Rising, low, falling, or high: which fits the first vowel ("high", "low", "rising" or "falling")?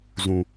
low